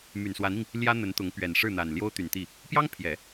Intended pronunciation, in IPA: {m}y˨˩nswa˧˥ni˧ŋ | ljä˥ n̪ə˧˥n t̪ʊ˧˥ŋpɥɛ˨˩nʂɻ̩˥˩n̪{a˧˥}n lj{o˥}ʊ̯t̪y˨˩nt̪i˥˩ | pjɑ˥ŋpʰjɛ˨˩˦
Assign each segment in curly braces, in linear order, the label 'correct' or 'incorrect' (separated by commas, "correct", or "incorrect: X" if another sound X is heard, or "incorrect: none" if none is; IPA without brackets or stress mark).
correct, incorrect: a˨˩, correct